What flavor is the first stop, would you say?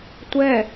plain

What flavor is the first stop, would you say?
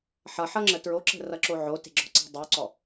click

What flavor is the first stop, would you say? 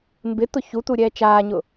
plain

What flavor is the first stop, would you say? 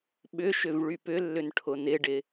implosive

